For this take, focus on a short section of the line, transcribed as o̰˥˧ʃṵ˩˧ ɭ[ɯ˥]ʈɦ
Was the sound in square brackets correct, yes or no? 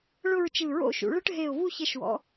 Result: yes